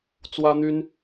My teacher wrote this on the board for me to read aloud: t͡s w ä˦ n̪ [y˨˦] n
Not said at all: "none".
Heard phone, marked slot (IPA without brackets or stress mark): y˦